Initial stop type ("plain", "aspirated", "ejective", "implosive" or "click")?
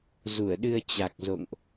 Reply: implosive